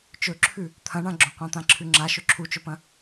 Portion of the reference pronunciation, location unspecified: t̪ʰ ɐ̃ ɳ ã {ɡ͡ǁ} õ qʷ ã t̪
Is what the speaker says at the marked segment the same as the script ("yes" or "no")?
yes